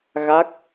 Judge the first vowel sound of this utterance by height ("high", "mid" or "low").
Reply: low